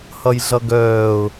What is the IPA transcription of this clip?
h ʌ j ɮ ʌ ɡ œː ʊ̯

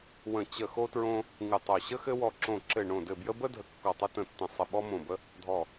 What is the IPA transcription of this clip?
w ə̃˧˩ t͡ɕ ə˧˩ x o˦ t ɹ õ˦ | ŋ ɨ˧˩ tˤ o˧˩ ɕ ə˦ x ɘ˦ w ɔ˧˩ ǁ õ˧˩ ǁ ɘ˧˩ ɳ õ˧˩ d ɘ˧˩ b j ə˦ b ə˦ dʱ ə˧˩ kː ɔ˧˩ tˤ ɘ˦ t ə̃˧˩ tː ə̃˧˩ sˤ ə˧˩ ɓ ɔ˦ m õ˧˩ b ə˦ | dʱ ɔ˧˩

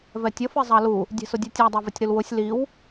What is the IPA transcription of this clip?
v ɛ tʲ ʌ f i zˤ ɑ l u | dʲ ɛ̤ s ʊ dʲ ɛ tʲ æ dˤ ɛ v ɪ tʲ ɾ u l w ʊ sʲ l i w

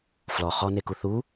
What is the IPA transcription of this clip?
f l ɔ χ ɔ n e k u θ u

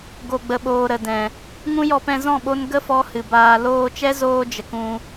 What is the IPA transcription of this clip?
ɡ o˨ ɡ͡b ə˨ ɓ oː˨ ɾ ə˨ d ɛ̃˨ | ŋ ũ˦ j ɔ˧ p ɛ̃˧ z ɔ̃˦˨ ɓ o˧ n ɡ ə˦ f ɔ˦ h ɨ˨ b aː˧ l oː˧ t͡ʃ ɛ˦ z oː˧ d͡ʒ ə˨ k ũ˧

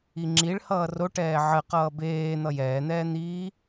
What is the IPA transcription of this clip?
i ŋ͡ǁ i ɭ h ʌː r o ʈ ɛː ʕ ɜ q ʌː b eː n̪ ʌ j ɛː n̪ ɛː n̪ iː

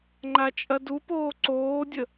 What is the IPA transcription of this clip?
ŋ͡ǃ a t͡ʃʼ ɐ d u p oː ǀ oː dʲ ə

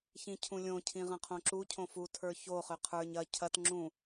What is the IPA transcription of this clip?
ç ĩ cʰ ũ lʲ õ cʰ ĩ ʁ ɐ̃ qʰ õ ǁ u cʰ õ f u tʰ ə˞ ç o χ ʏ qʰ ə˞ ɲ ɐ cʰ ɐ t ŋ͡ǁ ũ

